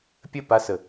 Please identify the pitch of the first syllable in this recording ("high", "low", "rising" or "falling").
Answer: falling